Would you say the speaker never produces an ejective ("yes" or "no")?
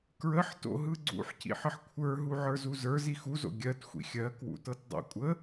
no